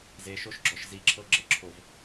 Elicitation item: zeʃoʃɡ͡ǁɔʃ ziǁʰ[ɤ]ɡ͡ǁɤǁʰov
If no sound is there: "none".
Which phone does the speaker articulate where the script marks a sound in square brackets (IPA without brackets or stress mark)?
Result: ɤ